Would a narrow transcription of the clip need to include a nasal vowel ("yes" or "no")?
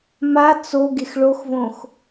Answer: yes